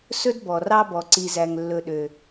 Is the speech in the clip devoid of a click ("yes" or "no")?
no